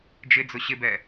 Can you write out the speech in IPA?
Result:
d͡ʒ ɪ d͡z ʊ ɕ ɪ b ɛ

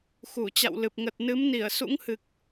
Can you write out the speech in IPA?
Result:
x u˧˩ t͡ɕ a̰˧˨ w l ɨ˨˩ p̚ ŋ ə˨˩ t̚ n ɨ˨˦ m n i˧˩ ə̯ s ṵ˧˥ ŋ h ɨ˨˩ k̚

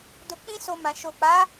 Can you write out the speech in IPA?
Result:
d o˧ k͡p ĩ˦ s o˧ m ã˨ ʃ o˨ k͡p a˨˦

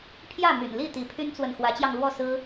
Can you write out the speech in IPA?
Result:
pʰ j ä˥˨ m y̰˨˩ n l i˥˨ t̪ i˨˦ pʰ y˦ n t͡s w ə˨ n x w ä˨˦ t͡ɕ j ɑ˧ ŋ l w ɔ˥˨ s ɹ̩˦

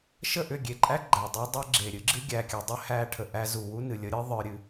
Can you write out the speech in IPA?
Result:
ʃ ə˦˨ ʔ ʏ˦˨ ɡʲ e˨ ǃʼ æ˦ ɡ͡ǃ æ˨ dˤ e˦ dˤ e˦ ɡ͡ǁ e˨ ɾʲ ɨ˦ ɡ͡ǁ ɨ˦ ɡʲ æ˨ kʲ ɨ˨ dˤ ʏ˦ h æ˦ ʈʰ ə˨ ʔ æ˦ z u˨ w u˦ n ɨ˨ lʲ ə˦ ɾʲ ɨ˦ ðˤ ə˞˨ ɾʲ ɨ˨

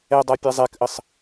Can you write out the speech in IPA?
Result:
ɛ dˤ a pʲ a zˤ ɛ k ʔ ə sˤ

